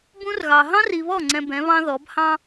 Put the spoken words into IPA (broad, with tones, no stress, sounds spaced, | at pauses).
b ũ˦ r ɣ ɑ˨ ɦ ɑ̃˦ r i˨ β ɔ˦˨ ŋ͡ǀ ɛ̃˨ b ɛ̃˨˦ β ɑ̃˦ ð ɔ˨˦ b h ɑ̃˦